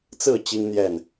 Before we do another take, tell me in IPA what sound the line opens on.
t͡s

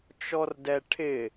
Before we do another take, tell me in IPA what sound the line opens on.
t͡ʃ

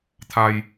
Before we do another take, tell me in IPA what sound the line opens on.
t̪ʰ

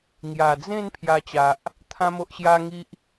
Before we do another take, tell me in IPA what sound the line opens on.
ŋ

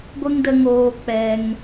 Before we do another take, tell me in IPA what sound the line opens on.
ɡʷ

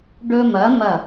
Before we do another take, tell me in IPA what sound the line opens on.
ɖ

